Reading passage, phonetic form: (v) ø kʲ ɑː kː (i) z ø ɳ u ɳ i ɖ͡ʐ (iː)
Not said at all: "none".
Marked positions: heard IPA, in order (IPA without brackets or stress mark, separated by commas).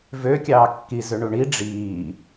v, i, iː